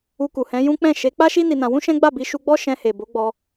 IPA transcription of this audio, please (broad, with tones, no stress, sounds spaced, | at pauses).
u˧ k u˨ h ɛ̃˨˦ j ũ˦ k͡p ɛ̃˦˨ ʃ e˨˦ k͡p a˦ ʃ i˦ n i˧ n ã˧ w ũ˦ ʃ ɛ̃˦ ɡ͡b a˦˨ b i˧ ʃ u˧ ɡ͡b ɔ˦ ʃ ɛ̃˧ h e˨ b o˨˦ ɡ͡b ɔ˧